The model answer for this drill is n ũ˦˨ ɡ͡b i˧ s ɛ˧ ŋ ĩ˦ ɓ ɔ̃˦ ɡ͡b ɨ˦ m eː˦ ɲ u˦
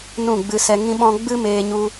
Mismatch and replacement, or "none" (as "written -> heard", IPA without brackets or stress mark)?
i˧ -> ɨ˧